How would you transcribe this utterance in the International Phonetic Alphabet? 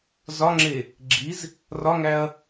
z ɒ ŋ͡ǁ e | ɡ͡ǁ i z | r ɒ ŋ æ ɐ̯

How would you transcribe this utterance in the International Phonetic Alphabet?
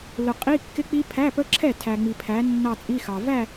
l ʊ˨ qʼ i˧˥˧ kː ɪ˦˥ k͡p i˦˥ pʰ æ˧˥˧ p ə˦˥ ǁʰ ɛ˥˩ tʰ æ˨ ŋ͡m i˨ pʰ æ˨˦ nː ɑ˥˧ t͡sʼ i˧˥˧ x ɑ˨ v æ˥˧

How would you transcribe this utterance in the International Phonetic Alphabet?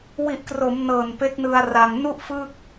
w i˨˩ ʔ k r o˩˦ m n ɤː˨˩ n p e˦˥ k̚ n ɯ˧ a̯ r a˧ ŋ n u˥˩ ʔ f ɯ˥˩ k̚

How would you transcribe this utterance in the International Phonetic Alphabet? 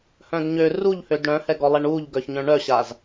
h œ̃ d ɲ ø r u ʎ h ø d ɽ œ̃ h ɛ ɡ ɔ lˠ ɛ ɳ u ʎ ɡ œ ç ɲ œ̃ ɳ œ ɕ a z

